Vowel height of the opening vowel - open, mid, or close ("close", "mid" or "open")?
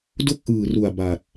mid